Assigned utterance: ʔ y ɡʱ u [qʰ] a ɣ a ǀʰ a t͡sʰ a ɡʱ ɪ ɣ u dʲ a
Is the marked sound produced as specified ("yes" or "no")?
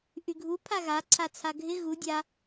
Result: no